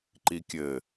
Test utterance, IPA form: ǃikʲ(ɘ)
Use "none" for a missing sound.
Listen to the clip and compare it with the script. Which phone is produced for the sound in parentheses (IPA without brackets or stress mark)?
ɘ